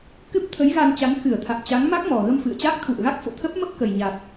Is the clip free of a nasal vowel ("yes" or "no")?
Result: yes